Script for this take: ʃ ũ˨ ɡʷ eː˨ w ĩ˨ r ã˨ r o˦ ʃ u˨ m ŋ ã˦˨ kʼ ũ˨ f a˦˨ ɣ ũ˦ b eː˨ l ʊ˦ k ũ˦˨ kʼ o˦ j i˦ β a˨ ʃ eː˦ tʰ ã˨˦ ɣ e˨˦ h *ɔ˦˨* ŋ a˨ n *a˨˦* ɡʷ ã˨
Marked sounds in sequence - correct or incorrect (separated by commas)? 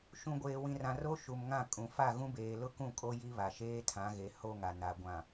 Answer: incorrect, incorrect